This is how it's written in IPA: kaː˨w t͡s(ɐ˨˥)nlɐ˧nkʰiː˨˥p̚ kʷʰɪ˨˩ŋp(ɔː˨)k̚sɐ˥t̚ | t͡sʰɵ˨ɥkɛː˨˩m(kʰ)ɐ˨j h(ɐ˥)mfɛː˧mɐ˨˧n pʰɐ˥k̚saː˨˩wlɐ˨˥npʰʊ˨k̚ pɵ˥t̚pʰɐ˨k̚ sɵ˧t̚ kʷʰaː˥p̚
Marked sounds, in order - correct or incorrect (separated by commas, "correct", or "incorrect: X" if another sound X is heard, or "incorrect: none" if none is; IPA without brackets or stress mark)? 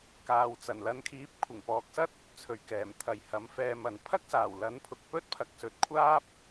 incorrect: ɐ˨˩, incorrect: ɔː˨˥, incorrect: t̪ʰ, incorrect: ɐ˨˥